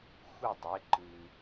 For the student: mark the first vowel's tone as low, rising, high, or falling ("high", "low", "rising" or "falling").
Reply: falling